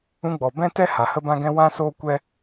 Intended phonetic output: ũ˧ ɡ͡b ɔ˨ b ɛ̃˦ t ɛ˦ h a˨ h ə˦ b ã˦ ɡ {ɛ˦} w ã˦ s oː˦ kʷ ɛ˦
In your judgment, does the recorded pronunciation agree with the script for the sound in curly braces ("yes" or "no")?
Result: no